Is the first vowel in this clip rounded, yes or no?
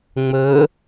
yes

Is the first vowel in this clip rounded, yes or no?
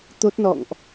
yes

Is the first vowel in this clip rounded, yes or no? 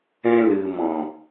no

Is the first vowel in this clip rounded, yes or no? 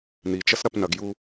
no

